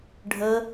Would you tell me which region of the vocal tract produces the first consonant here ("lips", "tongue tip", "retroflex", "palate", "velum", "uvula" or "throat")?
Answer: retroflex